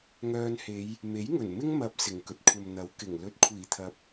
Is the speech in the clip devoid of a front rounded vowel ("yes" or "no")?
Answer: no